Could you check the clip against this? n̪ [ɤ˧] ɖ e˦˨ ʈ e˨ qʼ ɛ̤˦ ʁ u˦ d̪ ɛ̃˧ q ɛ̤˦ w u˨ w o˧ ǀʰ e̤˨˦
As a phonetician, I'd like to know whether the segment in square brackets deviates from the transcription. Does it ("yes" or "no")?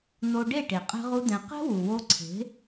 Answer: yes